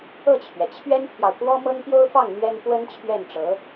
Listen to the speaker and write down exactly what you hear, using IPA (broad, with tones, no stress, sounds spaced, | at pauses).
ɤ˥˩ t͡ɕʰ ɥ ɛ˩ t͡ɕʰ ɥ ɛ˥ n pʰ j ɑ˨ ʊ̯ k w ɔ˥ m ɤ˥ ŋ p j o˥ ʊ̯ f ɑ˥˩ ŋ n̪ ɥ ɛ˥ n p w ə˥ n t͡ɕʰ ɥ ɛ˥˩ n ʈ͡ʂ ɤ˧˥